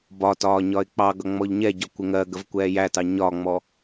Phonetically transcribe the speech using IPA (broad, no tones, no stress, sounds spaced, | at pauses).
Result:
b ɒ t ɒː ɲ ɒ ɪ̯ k͡p ɑ ɡ ʌ ŋ͡m ɔ ʎ ɲ ɛ ɟ ɒ kʷ ɪ ŋ ɜ ɡ ə v kʷ ɛː j æ t ɑ ɲ ɒ ŋ͡m ɔ